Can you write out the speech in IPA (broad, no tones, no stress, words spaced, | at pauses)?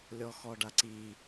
lʲɔxɔɖaǀi